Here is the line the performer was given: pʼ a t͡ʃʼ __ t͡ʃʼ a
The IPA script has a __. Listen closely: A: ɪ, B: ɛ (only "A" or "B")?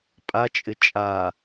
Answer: A